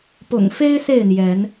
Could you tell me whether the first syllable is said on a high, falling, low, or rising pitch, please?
low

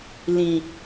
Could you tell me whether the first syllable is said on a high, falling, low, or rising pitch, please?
low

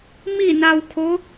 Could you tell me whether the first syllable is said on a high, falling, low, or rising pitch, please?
falling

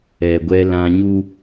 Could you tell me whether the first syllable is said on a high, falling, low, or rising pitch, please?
low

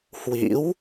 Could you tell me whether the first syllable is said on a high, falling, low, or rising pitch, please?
rising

